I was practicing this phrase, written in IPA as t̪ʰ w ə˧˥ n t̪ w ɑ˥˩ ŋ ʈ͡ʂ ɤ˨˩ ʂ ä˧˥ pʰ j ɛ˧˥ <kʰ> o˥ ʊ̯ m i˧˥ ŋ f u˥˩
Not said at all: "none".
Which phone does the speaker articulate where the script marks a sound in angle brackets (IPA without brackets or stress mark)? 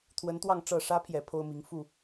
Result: pʰ